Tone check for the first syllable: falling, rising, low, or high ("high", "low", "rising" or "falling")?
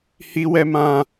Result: high